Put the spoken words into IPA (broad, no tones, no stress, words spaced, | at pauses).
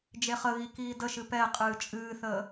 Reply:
d͡ʒeχəɣi kiːdəʃɨ pɛ qʼɨːt͡ʃʼɨːθəː